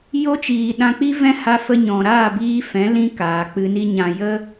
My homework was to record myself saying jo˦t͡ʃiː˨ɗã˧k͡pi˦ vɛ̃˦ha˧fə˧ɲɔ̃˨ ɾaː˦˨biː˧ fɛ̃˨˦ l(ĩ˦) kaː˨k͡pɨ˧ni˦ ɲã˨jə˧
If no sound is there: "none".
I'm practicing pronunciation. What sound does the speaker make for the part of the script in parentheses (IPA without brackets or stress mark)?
ĩ˧